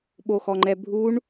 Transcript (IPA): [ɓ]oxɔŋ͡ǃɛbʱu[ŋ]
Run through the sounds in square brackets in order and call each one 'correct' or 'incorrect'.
correct, incorrect: ɳ

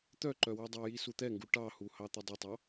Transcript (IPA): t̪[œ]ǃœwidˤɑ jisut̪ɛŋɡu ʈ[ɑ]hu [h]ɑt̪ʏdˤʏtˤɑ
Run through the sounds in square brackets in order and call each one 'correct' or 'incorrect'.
correct, correct, correct

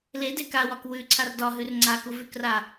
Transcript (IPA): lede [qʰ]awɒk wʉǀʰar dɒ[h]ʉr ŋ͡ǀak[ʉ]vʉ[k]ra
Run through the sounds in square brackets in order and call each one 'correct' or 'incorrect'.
incorrect: k, incorrect: ɦ, incorrect: u, correct

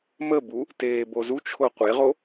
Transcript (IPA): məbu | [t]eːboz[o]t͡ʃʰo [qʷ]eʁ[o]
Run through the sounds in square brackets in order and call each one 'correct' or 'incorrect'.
correct, incorrect: u, correct, correct

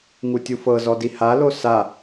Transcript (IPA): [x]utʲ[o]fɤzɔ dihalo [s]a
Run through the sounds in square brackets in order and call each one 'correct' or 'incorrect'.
incorrect: ŋ, incorrect: u, correct

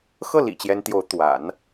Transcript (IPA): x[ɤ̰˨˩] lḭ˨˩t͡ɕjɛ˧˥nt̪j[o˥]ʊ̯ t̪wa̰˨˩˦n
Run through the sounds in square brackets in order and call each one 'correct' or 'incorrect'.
incorrect: ɤ˥˩, incorrect: o˧˥

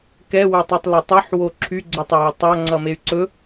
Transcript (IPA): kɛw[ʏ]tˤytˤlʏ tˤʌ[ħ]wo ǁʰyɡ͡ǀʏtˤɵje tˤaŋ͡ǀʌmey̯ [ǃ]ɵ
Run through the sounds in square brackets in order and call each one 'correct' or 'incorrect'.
correct, correct, incorrect: ǀ

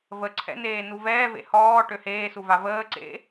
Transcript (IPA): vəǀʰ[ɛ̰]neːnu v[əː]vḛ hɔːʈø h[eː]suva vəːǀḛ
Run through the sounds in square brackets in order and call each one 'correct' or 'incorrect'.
correct, incorrect: ɛː, correct

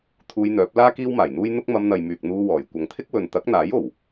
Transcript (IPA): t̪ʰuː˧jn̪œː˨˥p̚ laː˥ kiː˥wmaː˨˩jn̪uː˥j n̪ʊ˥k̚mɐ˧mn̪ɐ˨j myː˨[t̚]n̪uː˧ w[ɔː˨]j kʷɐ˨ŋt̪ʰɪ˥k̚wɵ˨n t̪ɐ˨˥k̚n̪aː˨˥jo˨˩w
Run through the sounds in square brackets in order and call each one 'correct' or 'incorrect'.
incorrect: k̚, incorrect: ɔː˨˩

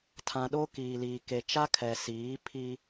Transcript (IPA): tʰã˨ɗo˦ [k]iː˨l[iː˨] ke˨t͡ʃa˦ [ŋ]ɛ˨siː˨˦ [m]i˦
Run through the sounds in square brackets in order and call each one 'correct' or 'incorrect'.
correct, correct, incorrect: kʰ, incorrect: pʰ

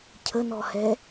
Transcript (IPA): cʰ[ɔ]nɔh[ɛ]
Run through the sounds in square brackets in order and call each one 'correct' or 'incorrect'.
incorrect: ə, correct

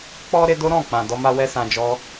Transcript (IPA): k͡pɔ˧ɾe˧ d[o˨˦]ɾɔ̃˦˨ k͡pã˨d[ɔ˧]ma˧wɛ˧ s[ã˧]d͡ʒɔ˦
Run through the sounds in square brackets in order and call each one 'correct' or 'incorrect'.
incorrect: o˦, correct, correct

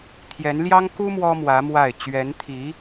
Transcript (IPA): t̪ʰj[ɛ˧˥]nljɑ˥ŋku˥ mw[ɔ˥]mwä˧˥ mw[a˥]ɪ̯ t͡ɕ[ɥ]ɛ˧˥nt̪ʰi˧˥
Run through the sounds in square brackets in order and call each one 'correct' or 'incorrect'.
correct, correct, incorrect: a˥˩, correct

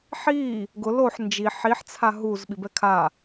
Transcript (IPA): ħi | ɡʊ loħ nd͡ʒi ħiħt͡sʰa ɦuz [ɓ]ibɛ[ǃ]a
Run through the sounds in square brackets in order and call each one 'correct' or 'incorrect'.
correct, incorrect: kʰ

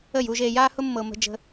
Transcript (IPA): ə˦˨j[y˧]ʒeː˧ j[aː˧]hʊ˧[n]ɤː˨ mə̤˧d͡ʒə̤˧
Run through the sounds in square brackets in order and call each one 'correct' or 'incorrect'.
incorrect: u˧, correct, incorrect: mː

